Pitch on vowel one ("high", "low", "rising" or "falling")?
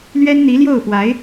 high